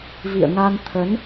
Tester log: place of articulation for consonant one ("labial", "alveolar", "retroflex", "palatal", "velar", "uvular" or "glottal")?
labial